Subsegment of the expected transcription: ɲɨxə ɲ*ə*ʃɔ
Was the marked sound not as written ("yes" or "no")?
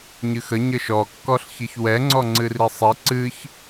no